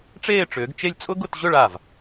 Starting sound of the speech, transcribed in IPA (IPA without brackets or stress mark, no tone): ʈ͡ʂ